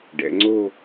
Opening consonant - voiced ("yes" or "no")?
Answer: yes